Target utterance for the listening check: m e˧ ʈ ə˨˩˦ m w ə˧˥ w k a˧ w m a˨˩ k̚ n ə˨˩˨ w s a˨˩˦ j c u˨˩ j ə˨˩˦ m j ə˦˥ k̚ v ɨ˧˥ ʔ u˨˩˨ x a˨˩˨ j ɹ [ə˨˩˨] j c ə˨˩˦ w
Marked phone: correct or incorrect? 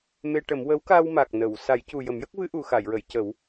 correct